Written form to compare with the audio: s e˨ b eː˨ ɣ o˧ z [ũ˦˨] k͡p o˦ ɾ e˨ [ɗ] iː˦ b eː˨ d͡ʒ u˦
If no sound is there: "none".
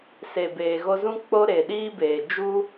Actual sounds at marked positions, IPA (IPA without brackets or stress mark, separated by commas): ũ˦, ɗ